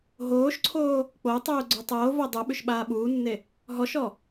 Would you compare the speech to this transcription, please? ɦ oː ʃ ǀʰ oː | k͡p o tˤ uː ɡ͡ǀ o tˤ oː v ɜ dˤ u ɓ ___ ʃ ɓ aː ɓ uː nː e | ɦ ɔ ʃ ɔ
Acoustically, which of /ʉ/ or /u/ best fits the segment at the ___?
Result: ʉ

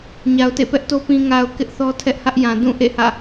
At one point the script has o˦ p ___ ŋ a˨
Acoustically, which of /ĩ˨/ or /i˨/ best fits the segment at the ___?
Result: ĩ˨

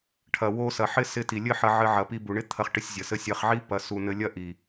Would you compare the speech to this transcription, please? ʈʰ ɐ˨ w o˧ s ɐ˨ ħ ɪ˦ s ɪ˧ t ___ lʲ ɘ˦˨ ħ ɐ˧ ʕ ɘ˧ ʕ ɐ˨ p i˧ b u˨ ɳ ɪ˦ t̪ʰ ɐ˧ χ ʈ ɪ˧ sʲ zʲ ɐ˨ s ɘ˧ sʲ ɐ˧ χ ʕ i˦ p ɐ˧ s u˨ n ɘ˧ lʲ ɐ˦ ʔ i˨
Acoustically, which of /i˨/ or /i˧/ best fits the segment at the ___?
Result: i˨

